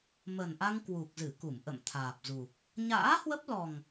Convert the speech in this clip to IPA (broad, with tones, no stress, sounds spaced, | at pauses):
m ə˨˩ n ʔ a˧ ŋ k w u˨˩ k̚ z ɨ˧˩ k u˧˩ m ʔ ə̰˧˨ m t̪ʰ aː˨˩ p̚ z u˨˩ | ɲ a̰ː˧˥ h w ə˦˥ p̚ l ɔ˨˩ ŋ